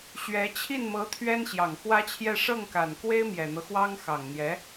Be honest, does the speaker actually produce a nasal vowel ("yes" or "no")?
no